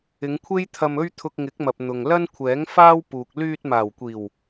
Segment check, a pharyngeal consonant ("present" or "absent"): absent